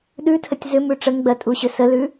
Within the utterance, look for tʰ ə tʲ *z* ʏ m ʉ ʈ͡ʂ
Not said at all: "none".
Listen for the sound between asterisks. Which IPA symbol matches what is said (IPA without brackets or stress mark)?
z